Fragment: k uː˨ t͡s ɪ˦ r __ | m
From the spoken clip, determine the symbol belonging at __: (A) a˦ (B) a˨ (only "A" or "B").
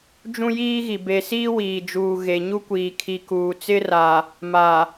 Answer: B